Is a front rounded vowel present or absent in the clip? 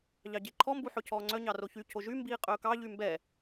present